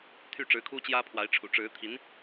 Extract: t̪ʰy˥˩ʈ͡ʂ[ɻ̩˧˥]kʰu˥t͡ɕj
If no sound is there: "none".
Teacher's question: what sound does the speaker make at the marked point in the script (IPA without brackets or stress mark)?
ɻ̩˧˥